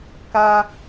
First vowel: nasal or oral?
oral